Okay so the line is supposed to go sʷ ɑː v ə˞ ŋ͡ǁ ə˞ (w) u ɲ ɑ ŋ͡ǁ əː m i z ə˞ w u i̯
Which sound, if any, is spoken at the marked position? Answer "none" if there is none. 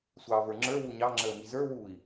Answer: w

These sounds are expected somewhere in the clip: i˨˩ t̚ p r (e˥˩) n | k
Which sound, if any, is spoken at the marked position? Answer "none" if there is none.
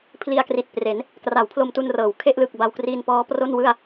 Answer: e˩˦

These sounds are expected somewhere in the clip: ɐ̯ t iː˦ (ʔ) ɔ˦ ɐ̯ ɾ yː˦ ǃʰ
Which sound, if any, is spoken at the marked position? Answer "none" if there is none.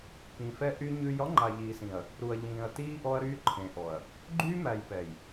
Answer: ʔ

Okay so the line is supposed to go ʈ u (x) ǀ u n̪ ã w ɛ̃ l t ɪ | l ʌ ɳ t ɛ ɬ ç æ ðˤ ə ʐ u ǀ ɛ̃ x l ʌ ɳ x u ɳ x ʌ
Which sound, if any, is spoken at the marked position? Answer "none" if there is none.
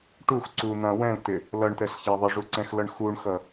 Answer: x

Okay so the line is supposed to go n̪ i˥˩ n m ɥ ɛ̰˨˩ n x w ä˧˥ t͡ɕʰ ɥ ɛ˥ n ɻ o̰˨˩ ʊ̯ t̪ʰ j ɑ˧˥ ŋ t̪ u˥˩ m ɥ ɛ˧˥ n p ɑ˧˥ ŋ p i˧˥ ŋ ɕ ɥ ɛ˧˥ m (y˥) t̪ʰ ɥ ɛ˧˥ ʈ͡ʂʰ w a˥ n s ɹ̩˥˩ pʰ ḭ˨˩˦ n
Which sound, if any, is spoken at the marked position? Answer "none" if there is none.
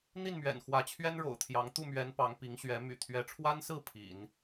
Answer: y̰˨˩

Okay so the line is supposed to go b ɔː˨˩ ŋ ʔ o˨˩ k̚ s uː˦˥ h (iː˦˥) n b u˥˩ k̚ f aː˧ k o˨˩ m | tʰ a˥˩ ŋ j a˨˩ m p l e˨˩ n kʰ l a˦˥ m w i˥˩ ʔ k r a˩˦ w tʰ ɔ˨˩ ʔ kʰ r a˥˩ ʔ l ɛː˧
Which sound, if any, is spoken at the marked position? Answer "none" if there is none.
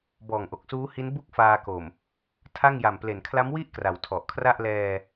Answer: i˦˥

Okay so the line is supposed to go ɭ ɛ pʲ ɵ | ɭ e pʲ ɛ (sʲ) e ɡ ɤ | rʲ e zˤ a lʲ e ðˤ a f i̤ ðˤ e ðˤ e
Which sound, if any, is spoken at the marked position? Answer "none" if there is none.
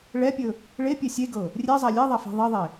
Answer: sʲ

